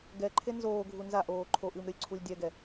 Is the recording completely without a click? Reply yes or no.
no